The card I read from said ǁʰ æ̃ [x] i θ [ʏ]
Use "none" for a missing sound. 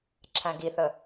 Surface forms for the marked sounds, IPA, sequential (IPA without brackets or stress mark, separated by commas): ɡ, ə